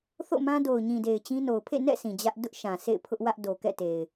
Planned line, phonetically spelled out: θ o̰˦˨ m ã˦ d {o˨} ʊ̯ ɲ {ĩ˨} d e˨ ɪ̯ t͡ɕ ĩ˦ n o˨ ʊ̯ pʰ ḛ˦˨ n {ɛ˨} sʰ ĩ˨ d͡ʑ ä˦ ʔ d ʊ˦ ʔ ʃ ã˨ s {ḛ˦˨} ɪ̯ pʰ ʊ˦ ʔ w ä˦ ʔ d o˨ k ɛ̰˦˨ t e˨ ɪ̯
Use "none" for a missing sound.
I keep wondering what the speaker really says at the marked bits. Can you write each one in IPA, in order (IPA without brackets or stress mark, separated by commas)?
o˨, ĩ˨, ɛ̰˦˨, ḛ˦˨